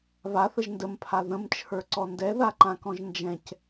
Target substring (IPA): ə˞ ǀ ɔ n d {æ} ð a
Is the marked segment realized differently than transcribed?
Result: yes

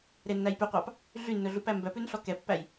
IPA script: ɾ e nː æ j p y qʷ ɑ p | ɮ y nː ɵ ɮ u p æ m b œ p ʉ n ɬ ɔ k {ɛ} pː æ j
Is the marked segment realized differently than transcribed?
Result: no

